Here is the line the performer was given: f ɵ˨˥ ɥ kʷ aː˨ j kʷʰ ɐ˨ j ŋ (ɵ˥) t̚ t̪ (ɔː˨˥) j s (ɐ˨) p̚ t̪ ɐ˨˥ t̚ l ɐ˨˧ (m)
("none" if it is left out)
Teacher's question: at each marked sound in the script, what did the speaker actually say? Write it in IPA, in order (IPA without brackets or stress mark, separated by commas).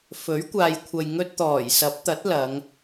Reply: ɵ˧, ɔː˨˩, ɐ˨˥, ŋ